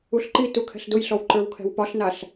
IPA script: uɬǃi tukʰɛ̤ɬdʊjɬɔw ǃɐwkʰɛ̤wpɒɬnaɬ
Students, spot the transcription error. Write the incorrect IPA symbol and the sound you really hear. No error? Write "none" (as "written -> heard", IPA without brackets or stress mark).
ɐ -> ə˞